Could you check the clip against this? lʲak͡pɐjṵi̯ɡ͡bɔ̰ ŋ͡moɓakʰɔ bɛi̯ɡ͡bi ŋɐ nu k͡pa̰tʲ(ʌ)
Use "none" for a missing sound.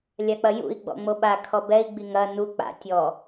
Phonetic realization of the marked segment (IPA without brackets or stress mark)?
ɔ